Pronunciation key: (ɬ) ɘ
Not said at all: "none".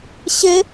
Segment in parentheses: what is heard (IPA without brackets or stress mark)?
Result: ɕ